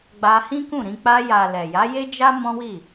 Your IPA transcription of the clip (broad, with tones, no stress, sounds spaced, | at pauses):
ɡ͡b a˧ h ĩ˦ k ũ˦˨ ɾ ĩ˧ k͡p a˧ j a˨ l ɛ˨ j a˨˦ j e˦ d͡ʒ a˦ m ɔ̃˦ w i˦˨